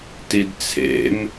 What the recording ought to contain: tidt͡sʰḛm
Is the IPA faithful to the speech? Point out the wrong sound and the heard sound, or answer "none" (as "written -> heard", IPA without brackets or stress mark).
none